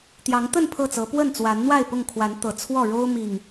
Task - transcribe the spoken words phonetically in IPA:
t̪jɑ˨˦ŋt̪ə˥˨n pʰɤ˥˨t͡sɤ˨˦ pwə˥˨nt͡swa˨˦n n̪wa˥˨ɪ̯pʊ˥˨ŋkʰwa˨˦n t̪ɤ˨˩t͡sʰwɔ˥˨ ɻo˦ʊ̯mi˨˩ŋ

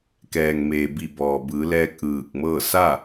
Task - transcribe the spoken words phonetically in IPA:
kɛː˩ŋmeː˩bi˧˩ bɔː˩bɯː˩˧lɛː˧k̚ ʔɯː˧˩k̚mɤː˥˨ sa˥˨

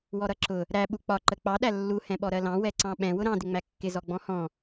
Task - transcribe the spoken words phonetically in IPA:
wɔɾʌǁʊ | ɾæ ɓuk͡pɒ ǃək͡pɑ ɗælːu hɛ̃ɓɔɾɜlɑ̃ wɛǀɑ̃ɓɛ̃ wʊɾɑ̃ dɪŋ͡mækːɪ zɔɡ͡bɔ̃hɔ̃

